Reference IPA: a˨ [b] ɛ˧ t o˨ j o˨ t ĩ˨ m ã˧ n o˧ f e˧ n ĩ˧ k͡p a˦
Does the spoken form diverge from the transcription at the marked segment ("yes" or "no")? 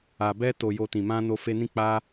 no